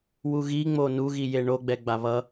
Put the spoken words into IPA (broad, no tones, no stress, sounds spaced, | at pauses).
w u ɣ i ŋ͡m o n u ɣ i j e ɳ o ɡ͡b ɛ ɡ͡b a β ʌ